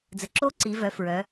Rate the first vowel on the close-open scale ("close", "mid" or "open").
mid